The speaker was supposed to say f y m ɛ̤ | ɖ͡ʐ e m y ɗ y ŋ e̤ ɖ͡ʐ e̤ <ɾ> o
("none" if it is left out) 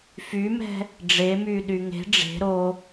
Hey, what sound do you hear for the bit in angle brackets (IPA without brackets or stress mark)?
ɾ